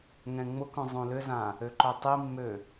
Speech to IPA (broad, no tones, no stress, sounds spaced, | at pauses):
ŋ ɛ̃ ŋ͡m ʊ k œ̃ zˤ õ l ʏ z ã | ø ǃ œ tˤ i mː ø